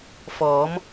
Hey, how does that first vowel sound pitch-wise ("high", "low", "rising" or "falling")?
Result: rising